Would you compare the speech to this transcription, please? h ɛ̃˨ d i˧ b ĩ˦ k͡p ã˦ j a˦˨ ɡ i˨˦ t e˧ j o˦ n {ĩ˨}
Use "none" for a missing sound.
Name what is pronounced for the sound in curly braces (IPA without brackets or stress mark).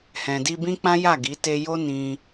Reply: ĩ˧